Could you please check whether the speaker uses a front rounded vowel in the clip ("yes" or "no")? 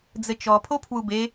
no